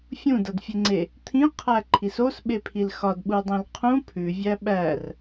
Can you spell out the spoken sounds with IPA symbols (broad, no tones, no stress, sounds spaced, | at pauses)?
fʲ ũ d ʌ d fʲ e ŋ͡ǀ e | t̪ʰ ĩ qʰ æ ǃʰ i s o s ɓ e pʰ i l x ɒ d ɓ u dˤ ĩ l qʰ ũ pʰ ʉ vʲ æ ɓ æ r